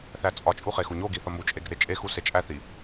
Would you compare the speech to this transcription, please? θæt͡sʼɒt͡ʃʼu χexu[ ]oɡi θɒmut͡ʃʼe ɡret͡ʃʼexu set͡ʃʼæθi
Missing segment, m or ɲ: ɲ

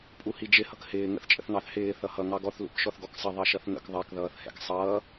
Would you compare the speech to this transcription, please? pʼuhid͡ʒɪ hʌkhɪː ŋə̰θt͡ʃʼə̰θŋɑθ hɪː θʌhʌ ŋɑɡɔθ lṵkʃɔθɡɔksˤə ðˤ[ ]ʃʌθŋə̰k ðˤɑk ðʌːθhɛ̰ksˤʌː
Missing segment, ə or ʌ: ʌ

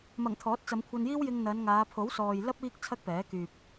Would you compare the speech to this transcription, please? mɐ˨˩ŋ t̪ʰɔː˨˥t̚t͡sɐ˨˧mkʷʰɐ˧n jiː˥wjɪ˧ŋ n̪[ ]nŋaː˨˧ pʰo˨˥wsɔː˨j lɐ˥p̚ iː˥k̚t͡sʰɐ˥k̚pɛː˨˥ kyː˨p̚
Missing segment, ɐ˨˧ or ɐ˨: ɐ˨˧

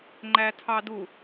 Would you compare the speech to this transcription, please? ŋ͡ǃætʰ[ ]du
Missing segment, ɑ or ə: ɑ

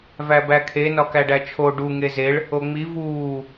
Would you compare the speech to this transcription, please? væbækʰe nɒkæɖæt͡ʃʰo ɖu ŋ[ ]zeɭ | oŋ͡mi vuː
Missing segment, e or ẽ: e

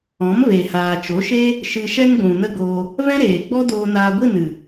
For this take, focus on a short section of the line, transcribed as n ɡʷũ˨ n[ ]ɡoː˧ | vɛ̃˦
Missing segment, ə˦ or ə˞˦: ə˦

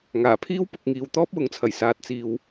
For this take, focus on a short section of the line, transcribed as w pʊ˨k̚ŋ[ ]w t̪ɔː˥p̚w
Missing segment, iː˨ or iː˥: iː˨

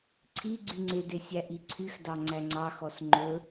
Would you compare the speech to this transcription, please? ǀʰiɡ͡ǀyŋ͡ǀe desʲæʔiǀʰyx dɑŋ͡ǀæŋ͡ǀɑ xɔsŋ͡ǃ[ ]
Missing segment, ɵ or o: ɵ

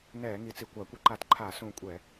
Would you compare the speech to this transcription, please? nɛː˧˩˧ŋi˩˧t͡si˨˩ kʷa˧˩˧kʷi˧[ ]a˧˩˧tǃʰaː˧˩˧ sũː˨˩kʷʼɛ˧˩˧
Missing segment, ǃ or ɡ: ǃ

